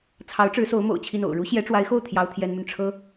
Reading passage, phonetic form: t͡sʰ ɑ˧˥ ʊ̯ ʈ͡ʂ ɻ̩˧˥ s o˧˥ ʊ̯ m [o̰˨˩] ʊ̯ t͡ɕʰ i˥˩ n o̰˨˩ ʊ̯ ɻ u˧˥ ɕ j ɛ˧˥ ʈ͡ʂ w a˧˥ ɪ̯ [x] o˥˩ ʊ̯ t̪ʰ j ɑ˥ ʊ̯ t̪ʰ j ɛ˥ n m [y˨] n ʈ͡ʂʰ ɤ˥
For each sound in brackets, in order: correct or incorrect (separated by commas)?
correct, correct, correct